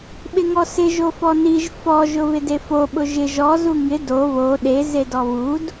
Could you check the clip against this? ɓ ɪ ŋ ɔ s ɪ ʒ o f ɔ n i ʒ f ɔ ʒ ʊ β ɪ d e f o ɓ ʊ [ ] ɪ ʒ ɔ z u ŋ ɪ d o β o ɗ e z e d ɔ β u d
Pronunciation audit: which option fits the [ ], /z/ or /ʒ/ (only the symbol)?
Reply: ʒ